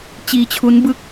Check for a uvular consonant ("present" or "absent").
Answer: absent